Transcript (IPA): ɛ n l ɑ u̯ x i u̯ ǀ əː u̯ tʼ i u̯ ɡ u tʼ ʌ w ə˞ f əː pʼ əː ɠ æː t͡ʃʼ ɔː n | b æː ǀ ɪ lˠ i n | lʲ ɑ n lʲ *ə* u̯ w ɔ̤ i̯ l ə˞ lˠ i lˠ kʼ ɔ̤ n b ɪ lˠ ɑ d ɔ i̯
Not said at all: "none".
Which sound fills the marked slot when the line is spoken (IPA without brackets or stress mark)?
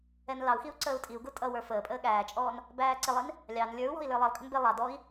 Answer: ə˞